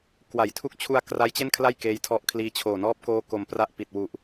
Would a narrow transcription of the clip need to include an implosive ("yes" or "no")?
no